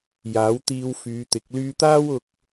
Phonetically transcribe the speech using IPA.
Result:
j aː˨˥ w t̪ iː˧ w f yː˨˧ t̪ ɪ˨˥ k̚ l yː˧ t̪ aː˥ w ʊ˧ k̚

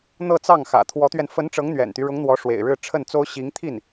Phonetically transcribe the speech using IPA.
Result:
n̪ ɤ˥˧ t͡s ɑ˥˩ ŋ x ä̰˨˩ t̪ʰ w ɔ˧˥ t̪ ɥ ɛ˧ n f ə˧˥ n ʈ͡ʂ ɤ˧˥ ŋ n̪ ɥ ɛ̰˨˩ n t̪ y˦ ɻ ʊ˧˥ ŋ n̪ w ɔ˧˥ ʂ w ḛ˨˩ ɪ̯ ɻ ɻ̩˥˧ ʈ͡ʂʰ ə˥˩ n t͡s o˥ ʊ̯ ɕ i˧˥ ŋ t̪ʰ i˥˩ n

